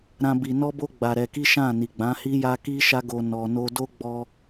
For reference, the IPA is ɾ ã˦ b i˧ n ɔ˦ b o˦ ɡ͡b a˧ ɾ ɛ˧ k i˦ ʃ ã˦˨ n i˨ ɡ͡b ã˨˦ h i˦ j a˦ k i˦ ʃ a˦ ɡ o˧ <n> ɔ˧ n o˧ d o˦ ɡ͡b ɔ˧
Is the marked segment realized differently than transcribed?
no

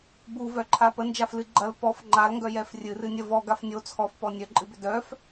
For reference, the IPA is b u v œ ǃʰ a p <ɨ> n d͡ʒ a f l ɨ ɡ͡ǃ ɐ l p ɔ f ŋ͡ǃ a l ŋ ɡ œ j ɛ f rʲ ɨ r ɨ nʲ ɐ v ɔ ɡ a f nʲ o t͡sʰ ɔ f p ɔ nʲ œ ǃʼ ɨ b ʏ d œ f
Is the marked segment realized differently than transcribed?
yes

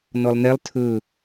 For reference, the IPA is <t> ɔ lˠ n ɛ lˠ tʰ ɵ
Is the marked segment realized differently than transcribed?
yes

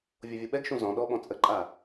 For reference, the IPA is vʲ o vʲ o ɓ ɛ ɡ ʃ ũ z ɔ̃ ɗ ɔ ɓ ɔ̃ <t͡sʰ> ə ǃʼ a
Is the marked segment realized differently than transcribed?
yes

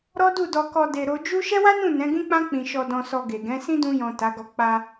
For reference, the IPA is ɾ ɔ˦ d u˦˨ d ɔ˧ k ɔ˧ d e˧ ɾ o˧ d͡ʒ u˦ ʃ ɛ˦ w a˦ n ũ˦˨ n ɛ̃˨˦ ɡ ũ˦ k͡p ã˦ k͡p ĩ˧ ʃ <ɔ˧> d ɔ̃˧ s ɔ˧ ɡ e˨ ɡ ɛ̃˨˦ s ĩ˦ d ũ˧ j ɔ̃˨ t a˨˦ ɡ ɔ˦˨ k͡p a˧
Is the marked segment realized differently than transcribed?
no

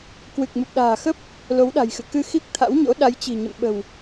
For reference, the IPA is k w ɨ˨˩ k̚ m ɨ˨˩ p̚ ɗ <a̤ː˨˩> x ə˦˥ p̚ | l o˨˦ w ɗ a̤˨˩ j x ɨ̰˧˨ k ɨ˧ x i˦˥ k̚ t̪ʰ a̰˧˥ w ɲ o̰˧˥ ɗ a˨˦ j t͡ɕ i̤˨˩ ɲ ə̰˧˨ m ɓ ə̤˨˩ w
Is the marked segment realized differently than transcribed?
no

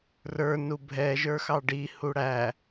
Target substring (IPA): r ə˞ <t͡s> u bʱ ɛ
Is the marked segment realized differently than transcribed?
yes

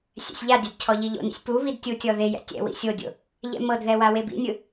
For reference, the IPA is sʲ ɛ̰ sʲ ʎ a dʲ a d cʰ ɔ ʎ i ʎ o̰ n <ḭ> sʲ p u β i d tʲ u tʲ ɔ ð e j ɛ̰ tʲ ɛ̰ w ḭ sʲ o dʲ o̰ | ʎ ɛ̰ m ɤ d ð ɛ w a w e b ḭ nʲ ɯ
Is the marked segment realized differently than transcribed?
no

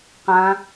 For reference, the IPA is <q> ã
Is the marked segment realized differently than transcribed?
no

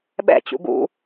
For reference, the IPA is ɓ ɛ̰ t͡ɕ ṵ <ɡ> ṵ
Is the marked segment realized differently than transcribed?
no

